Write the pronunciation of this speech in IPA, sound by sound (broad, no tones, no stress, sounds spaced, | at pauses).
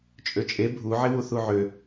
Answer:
t͡ʃʼ ø t͡ʃʼ e bʱ u ʕ ɪ w u θ u ʕ ø